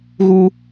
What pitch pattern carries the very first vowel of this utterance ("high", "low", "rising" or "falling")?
low